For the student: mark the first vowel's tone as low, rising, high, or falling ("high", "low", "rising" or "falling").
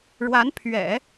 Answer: rising